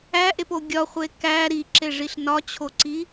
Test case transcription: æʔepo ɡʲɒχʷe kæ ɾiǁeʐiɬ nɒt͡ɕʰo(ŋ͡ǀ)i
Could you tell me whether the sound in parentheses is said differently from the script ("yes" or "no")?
yes